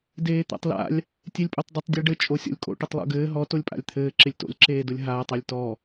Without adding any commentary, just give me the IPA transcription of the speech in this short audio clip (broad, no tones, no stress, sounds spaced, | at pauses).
d eː t̪ a̰ tˤ l a̰ lʲ | tʲ e lʲ pʼ o tˤ dˤ ɪ tˤ dʲ ɛ ɖ ɘ t͡ʃʼ o sʲ o̰ lʲ kʼ o̰ ʈ ɘ tˤ lˠ o̰ ɡ ɘː ɦ ɔ t o lʲ pʼ a̰ lʲ t̪ʰ ɘː ǁ ɪ lʲ t o̰ lʲ ǁ eː d ʊ lʲ ɦ aː tˤ e lʲ t ɔ